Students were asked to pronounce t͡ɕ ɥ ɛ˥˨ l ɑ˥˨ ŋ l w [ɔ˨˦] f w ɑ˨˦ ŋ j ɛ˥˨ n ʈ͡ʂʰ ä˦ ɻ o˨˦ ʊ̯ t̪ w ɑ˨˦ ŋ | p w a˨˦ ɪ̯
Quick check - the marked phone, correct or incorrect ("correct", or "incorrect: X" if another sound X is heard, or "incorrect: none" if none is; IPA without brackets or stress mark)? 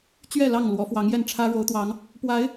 correct